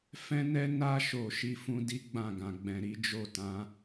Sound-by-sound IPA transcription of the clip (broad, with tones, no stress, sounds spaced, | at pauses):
f ɛ̃˦ n ɛ˦ n a˧ ʃ o˨ ʃ i˧ f ũ˦ d i˦ ɡ͡b ã˦˨ ɡ ã˨ ɡ͡b ɛ̃˨ ɾ i˨˦ d͡ʒ o˦˨ t ã˨˦